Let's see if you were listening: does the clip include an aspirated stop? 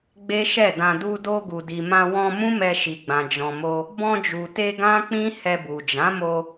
no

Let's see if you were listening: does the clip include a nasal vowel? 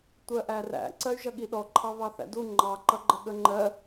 no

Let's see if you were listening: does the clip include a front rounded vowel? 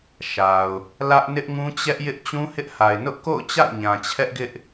no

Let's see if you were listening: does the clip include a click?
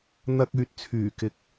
no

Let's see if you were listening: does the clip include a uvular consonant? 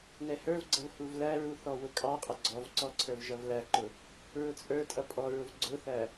yes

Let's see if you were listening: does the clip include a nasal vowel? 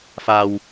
no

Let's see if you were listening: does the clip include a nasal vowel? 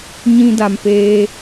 yes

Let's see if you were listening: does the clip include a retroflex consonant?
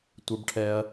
yes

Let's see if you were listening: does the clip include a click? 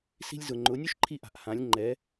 yes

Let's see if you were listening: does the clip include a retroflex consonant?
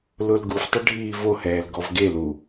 yes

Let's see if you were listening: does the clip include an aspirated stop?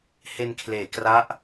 yes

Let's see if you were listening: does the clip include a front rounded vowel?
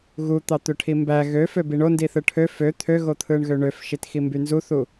yes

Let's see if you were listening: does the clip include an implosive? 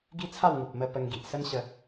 no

